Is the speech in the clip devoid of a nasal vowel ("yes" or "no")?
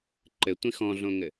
no